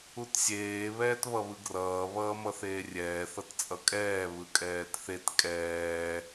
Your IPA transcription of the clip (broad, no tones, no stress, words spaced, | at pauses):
utsʲeː βɛːtβʌβɯɡrʌː βʌːmʌθeːrʲɛː θʌtt͡sʼʌkʼɛː βɯkʼɛːtθet kʼɛː